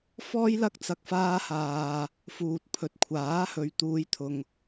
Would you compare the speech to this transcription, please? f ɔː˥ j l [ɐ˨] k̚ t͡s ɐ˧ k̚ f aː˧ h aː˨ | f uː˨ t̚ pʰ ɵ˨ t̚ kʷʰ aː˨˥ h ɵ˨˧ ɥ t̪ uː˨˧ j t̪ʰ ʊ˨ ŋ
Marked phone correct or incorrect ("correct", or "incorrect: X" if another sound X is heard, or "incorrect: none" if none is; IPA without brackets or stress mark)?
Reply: incorrect: ɐ˥